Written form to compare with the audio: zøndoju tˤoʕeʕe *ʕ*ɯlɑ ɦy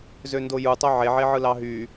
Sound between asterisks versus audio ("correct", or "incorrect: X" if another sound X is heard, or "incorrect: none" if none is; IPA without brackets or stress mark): correct